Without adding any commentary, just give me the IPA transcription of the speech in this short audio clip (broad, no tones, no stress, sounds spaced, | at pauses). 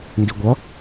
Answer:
n d i ɡʷ ʌ